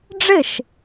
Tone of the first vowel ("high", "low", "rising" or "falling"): falling